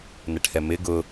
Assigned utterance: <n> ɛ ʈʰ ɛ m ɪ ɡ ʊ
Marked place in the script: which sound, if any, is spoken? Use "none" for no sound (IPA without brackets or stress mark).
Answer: n